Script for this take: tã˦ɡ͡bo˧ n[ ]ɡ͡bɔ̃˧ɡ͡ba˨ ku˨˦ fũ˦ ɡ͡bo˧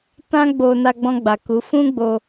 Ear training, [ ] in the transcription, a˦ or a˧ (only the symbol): a˧